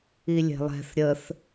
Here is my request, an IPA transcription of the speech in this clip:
i lʲ e̤ lˠ ɛ̤ θ ɾʲ ə θ

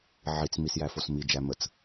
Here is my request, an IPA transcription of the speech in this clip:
ʕ i t͡s m i s j æ f o s m i d͡ʒ æ m ə t͡s

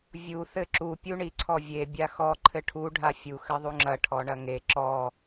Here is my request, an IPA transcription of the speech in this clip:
vʲ u θ ɘ ǁ u pʲ u ɳ i ǀʰ ɔ vʲ e bʲ a x ɔ ǃʰ ɘ ʈʰ u ɖʱ a fʲ u x ɘ ðˤ u ŋ͡ǁ ɐ ʈʰ ɔ ɳ ɐ ŋ e ǁ ɔ

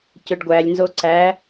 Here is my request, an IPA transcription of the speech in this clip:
c ø ɖ ɡʷ æ lʲ n z o ǀ æ

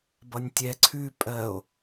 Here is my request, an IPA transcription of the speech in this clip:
b ʌ nʲ tʲ ɛ ǀʰ ʉ pʼ ɜ o̯

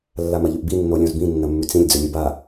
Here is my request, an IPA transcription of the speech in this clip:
lː a m ɐ ʎ ʉ ʔ b i nː o lʲ õ z b ĩ nː ɐ mː ʉ t͡s ĩ lʲ d͡z ɵ lʲ e b a

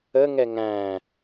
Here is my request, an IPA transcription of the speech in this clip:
ə ŋ ɛ ŋ æ̃

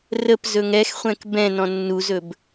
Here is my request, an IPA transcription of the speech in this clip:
r ə p z ɵ ŋ ɛ x χʷ ɛ̃ k b ɛ̃ n ɔ̃ nː u z ɵ b

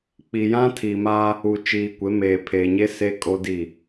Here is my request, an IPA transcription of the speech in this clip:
k͡p i˨ j ã˦ tʰ i˨ m a˦ | u˨ t͡ʃ iː˨ kʷ e˨˦ m eː˨ pʰ eː˨ ɲ e˦ s e˦ kʼ o˦ d i˦˨

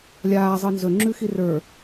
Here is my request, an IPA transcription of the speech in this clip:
lʲ aː zˤ ɤ n z ɵ ŋ͡ǁ ʉ x i r ə˞

